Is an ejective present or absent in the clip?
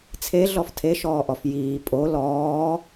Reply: present